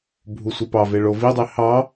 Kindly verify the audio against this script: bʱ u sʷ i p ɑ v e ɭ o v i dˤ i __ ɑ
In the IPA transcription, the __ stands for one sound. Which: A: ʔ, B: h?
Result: B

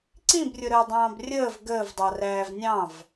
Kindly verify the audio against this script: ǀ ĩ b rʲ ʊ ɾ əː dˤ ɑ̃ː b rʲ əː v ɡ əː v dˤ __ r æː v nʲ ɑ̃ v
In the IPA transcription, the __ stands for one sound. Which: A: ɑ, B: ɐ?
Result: A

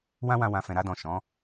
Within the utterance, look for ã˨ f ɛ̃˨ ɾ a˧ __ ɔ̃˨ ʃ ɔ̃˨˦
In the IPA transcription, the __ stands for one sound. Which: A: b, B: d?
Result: B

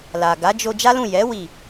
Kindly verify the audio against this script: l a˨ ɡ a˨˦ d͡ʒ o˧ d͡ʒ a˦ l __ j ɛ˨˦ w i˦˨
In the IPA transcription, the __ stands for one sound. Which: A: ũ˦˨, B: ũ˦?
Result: A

